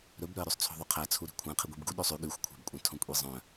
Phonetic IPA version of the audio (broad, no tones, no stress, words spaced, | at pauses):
ɾɵbɾœə̯ ɾʉsˤt͡sʰo̤ðˤɵqʰæ t͡sʰuɾi̤kʷʰæ̃ qʰiɡʷibɡu ɗøsˤʉ ɠʉxʷkʷʰæ̤bkʷʼœ̃ tʰõkʷʼizˤœ̃